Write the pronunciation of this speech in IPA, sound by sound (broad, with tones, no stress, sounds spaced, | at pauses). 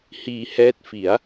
h iː˧ h ɛː˦˥ t̚ f i˩˦ a̯